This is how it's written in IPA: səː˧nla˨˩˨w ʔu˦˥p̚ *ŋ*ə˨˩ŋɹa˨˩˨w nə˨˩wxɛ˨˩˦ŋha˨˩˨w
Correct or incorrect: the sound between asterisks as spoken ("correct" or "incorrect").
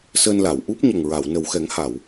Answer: incorrect